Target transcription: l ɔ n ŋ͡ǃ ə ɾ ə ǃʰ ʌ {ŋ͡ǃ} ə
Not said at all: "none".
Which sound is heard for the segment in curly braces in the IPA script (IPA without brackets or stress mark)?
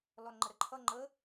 ŋ͡ǃ